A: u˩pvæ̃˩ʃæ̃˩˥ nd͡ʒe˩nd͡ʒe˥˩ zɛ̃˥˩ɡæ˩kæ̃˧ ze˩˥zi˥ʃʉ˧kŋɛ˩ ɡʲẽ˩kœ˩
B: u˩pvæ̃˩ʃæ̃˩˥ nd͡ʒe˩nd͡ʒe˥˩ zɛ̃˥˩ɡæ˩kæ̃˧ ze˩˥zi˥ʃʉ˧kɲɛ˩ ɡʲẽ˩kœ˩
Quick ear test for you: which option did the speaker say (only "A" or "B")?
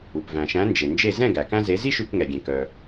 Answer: A